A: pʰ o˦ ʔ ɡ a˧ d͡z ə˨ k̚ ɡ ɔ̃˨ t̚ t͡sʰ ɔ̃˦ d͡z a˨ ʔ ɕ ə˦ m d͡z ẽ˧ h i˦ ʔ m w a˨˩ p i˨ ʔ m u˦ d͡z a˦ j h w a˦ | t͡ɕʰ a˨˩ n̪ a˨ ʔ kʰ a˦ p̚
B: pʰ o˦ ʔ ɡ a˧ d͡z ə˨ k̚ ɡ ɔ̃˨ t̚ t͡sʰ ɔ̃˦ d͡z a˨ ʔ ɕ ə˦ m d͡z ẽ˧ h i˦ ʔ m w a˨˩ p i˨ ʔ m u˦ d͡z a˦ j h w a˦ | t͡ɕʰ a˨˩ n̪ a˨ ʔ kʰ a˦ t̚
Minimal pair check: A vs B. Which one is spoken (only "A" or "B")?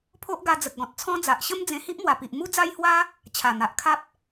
A